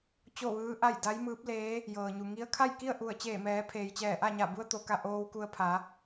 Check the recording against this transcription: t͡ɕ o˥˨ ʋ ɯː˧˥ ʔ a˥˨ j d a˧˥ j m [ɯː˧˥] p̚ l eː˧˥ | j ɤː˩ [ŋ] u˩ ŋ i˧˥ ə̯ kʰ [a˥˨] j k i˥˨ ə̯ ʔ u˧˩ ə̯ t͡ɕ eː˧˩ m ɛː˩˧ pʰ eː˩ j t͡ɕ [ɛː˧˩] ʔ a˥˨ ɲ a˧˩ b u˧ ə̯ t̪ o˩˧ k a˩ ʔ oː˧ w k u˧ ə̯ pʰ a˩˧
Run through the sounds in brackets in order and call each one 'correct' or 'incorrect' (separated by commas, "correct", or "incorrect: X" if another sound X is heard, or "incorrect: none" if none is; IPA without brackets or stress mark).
correct, incorrect: ɲ, correct, correct